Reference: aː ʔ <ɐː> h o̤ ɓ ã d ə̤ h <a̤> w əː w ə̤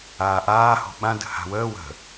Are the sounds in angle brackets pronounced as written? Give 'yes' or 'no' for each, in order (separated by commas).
no, yes